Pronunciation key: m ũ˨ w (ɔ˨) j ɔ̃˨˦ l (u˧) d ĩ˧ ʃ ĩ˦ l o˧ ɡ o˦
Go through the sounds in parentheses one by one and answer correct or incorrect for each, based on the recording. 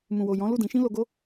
incorrect: o˨, incorrect: u˦˨

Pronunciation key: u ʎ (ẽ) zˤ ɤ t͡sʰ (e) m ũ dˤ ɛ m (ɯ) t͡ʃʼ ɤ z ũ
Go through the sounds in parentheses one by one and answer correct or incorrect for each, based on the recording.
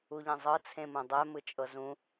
correct, incorrect: ẽ, correct

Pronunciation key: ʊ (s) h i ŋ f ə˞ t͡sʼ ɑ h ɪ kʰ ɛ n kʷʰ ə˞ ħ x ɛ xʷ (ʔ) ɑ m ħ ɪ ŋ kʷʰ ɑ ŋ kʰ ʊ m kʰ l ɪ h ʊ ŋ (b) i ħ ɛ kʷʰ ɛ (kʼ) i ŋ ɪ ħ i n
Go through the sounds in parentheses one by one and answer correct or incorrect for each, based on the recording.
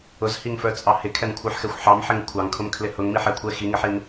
incorrect: z, incorrect: ħ, incorrect: m, incorrect: x

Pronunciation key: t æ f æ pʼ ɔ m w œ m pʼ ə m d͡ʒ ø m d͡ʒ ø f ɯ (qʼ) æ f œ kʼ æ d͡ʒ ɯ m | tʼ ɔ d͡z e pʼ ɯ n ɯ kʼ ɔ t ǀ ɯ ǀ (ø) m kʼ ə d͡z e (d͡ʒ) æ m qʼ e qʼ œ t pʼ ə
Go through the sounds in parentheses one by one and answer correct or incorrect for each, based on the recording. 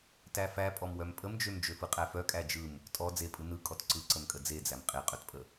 correct, incorrect: ə, incorrect: d͡z

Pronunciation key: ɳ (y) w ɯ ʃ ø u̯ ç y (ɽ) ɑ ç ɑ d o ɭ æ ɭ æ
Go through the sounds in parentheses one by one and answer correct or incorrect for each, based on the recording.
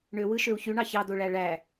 incorrect: ø, incorrect: ɳ

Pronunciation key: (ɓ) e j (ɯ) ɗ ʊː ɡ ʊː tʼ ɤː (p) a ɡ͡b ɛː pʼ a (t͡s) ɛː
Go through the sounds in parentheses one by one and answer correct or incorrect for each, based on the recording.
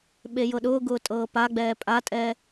correct, incorrect: ɤ, correct, incorrect: tʼ

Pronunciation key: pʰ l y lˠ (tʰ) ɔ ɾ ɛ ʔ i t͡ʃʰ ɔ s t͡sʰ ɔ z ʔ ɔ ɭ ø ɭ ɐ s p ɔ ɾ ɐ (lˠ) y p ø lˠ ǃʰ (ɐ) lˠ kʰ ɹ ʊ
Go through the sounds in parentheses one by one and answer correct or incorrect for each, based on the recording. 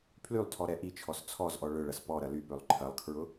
correct, incorrect: l, correct

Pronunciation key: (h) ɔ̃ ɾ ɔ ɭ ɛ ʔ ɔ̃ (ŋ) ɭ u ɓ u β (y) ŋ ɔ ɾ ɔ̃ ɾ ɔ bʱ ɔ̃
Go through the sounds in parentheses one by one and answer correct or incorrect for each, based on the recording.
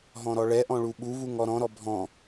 incorrect: ɦ, incorrect: none, incorrect: u

